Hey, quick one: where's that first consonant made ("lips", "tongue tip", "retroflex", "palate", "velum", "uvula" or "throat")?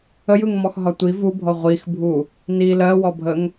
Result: palate